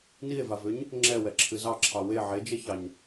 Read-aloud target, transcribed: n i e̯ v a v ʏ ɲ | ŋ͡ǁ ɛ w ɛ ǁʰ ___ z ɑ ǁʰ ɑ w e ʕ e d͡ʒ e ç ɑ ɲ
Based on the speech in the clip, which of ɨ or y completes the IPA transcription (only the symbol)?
ɨ